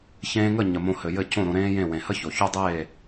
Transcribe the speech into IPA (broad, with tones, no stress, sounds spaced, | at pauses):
ç ẽː˧ ŋ ə˦˨ ɲ ə˨ m õ˧ h ɘ˨ j ɘ˦˨ c õ˦˨ ɾ õ˧ ɾ ẽː˦ j ẽ˦˨ w ẽ˨ h ə˦ ç o˨ ç o˦ dˤ eː˦˨